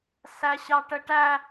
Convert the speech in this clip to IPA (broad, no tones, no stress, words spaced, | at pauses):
sæɕɑʈəʈæ